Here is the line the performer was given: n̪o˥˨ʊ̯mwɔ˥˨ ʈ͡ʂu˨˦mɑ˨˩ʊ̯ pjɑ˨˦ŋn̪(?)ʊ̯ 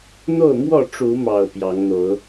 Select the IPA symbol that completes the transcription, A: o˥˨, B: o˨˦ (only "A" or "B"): B